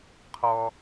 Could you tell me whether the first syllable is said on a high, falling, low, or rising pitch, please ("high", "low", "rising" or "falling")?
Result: high